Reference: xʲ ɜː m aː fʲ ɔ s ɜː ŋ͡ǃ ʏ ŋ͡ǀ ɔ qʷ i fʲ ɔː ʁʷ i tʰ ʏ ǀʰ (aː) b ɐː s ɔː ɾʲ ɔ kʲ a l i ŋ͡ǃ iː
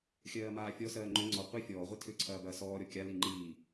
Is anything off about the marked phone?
yes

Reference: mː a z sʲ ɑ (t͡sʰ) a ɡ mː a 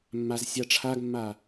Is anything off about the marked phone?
yes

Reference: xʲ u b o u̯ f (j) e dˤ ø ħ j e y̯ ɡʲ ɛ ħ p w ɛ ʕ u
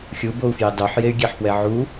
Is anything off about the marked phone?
no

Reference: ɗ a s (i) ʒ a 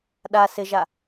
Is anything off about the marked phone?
yes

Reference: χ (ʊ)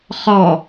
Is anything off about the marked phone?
yes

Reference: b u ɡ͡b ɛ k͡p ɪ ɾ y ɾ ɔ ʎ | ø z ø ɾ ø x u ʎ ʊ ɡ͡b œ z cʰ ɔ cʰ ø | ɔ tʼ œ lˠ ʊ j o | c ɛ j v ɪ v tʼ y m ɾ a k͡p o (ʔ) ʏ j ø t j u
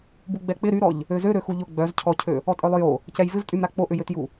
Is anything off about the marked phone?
no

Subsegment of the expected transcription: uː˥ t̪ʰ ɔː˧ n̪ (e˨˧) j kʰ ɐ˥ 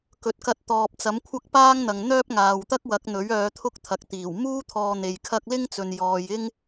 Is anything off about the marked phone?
yes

